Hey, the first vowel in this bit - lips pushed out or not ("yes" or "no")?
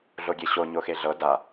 yes